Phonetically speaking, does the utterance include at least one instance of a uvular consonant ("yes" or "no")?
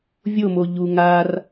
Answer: no